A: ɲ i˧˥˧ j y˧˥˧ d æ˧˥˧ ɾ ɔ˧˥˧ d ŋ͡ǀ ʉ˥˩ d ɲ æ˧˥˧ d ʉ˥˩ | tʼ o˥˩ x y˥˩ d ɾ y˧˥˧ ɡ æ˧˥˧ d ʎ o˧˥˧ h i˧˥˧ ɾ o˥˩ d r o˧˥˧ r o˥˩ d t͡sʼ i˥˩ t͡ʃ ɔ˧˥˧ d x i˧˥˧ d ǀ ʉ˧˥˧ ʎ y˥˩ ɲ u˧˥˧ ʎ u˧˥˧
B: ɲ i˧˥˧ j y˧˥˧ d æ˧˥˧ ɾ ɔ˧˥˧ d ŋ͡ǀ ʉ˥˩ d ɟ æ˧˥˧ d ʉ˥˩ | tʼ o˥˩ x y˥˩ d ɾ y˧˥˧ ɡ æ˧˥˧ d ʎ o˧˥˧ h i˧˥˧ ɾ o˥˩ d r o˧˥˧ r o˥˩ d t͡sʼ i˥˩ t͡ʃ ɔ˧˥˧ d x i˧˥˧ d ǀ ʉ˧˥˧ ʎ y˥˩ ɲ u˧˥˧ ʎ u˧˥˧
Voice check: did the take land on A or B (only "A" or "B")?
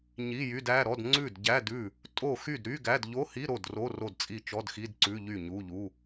B